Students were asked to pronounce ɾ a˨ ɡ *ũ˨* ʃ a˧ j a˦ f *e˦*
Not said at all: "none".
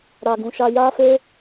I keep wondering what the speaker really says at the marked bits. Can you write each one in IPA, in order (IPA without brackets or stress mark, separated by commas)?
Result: ũ˨, e˦